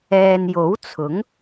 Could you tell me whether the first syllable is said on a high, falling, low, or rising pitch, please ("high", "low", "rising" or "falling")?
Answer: low